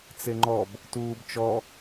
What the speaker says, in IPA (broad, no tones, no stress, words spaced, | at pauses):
t͡seŋ͡ǃɔb | tuːbt͡ʃɔ